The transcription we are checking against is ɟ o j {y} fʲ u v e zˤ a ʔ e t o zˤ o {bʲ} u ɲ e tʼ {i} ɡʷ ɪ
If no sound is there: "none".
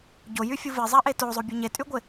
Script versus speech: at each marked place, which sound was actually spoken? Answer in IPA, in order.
y, bʲ, y

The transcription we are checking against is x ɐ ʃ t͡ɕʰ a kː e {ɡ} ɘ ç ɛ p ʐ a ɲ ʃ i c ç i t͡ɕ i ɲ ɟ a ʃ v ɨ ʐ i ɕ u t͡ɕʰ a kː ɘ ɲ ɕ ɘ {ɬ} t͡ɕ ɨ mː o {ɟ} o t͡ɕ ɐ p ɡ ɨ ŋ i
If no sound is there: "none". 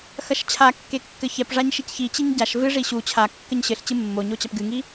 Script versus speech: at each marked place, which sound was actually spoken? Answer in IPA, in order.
kː, ɬ, ɲ

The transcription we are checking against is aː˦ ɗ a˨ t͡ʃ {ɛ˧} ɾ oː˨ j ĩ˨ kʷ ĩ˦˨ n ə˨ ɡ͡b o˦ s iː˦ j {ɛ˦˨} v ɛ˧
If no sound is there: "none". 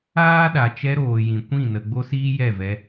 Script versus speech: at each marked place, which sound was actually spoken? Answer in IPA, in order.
ɛ˧, ɛ˦˨

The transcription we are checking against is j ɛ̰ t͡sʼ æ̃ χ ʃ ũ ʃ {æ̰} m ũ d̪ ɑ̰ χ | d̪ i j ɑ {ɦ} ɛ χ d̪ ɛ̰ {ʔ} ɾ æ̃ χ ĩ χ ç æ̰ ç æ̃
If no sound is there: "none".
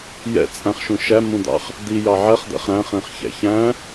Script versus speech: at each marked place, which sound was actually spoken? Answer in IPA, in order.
æ, ʕ, χ

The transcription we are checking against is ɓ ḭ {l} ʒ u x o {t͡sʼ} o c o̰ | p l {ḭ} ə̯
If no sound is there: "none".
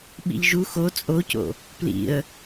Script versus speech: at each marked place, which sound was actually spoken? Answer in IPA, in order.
ʎ, t͡sʼ, ḭ

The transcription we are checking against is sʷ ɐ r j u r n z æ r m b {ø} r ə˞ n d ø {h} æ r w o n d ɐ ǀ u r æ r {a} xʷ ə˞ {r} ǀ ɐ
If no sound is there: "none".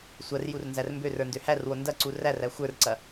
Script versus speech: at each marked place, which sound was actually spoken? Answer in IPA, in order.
ø, h, æ, r

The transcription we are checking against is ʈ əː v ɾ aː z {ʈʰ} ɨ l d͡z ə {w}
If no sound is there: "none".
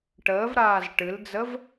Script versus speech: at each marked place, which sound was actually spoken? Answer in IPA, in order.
ʈ, v

